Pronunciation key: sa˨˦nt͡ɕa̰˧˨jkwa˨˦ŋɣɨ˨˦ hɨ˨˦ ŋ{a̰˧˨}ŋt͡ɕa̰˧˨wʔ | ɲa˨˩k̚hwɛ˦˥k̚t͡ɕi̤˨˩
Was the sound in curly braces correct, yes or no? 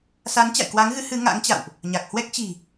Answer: no